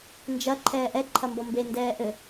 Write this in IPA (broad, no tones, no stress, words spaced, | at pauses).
nd͡ʒɐ ǃʰɛːʔɛ ǃʰɐmbɔmbe ndɛːʔɘ